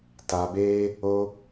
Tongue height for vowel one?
low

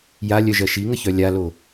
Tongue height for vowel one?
low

